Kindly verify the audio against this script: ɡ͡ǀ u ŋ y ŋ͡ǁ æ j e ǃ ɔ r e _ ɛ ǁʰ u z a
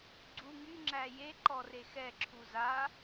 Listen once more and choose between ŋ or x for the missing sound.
x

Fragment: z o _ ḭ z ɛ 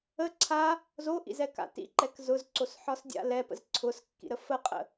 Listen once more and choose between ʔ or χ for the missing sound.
ʔ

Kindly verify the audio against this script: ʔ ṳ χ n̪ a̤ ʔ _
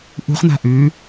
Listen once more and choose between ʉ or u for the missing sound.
ʉ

